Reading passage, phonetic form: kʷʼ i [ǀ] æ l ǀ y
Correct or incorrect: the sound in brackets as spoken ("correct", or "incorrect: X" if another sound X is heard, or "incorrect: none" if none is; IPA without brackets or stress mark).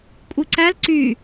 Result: correct